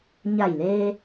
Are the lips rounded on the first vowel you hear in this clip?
no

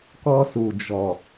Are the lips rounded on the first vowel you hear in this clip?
yes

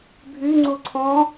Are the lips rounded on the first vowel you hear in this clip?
yes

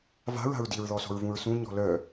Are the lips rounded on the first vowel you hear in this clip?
no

